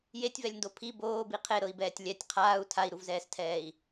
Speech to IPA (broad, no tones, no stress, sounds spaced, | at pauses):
j e tʲ v ɛ lʲ n d o pʰ i b oː b i qʰ e ɾ ɤ i̯ b ɛː tʲ lʲ ɛ tʲ qʰ aː u̯ tʰ a i̯ ɾ u v z ɛː s tʰ ɛː i̯